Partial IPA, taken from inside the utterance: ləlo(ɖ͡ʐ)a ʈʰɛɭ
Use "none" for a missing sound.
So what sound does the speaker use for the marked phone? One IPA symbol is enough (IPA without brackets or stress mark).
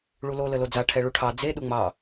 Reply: d͡z